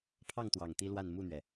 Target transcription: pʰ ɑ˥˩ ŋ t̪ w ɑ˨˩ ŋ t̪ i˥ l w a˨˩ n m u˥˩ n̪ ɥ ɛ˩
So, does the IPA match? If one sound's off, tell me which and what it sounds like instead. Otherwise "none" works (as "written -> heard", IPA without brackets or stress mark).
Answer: a˨˩ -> a˥˧